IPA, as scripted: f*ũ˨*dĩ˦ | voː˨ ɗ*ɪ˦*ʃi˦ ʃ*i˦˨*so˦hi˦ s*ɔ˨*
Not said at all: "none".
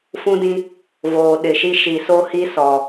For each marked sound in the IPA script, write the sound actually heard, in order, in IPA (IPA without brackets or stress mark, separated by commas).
ũ˦, ɪ˨, i˨, ɔ˨